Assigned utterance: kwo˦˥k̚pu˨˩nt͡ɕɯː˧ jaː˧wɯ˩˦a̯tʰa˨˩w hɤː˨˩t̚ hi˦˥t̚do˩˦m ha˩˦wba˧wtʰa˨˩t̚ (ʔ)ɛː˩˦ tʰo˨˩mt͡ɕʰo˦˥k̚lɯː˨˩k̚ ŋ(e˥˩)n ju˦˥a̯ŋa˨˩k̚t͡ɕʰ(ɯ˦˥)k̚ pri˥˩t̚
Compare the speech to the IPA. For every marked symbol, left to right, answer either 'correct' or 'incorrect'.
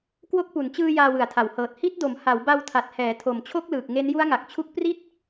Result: incorrect, incorrect, incorrect

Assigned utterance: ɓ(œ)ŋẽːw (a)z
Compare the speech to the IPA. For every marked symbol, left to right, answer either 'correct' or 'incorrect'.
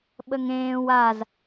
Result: incorrect, correct

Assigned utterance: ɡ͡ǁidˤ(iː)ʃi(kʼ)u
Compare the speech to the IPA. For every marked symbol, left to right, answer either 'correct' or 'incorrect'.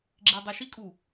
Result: incorrect, correct

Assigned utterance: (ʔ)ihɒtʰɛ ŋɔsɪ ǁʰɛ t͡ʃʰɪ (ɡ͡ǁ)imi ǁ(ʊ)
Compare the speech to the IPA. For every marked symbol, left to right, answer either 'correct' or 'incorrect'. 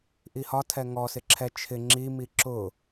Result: correct, incorrect, correct

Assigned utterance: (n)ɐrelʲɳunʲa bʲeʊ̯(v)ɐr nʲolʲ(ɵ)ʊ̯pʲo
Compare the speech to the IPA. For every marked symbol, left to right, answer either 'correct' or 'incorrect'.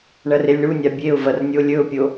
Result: incorrect, correct, correct

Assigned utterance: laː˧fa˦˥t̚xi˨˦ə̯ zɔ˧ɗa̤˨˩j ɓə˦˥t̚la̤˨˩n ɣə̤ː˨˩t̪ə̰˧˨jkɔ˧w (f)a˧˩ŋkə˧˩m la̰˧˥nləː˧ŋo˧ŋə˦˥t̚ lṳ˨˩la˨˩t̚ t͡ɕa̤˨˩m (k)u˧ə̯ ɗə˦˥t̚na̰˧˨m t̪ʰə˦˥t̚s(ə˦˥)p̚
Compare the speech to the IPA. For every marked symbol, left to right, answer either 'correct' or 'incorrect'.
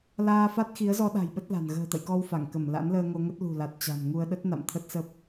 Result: correct, incorrect, correct

